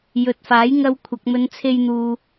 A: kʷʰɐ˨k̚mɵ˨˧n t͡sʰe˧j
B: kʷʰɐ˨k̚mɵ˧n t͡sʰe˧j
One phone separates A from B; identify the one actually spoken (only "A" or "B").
A